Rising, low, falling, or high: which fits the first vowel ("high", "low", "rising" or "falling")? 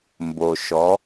low